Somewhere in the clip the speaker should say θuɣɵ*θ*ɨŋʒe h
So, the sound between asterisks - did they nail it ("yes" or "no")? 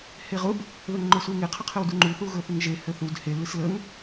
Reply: yes